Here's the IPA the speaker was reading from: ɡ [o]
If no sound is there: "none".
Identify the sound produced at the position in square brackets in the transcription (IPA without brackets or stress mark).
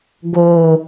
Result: o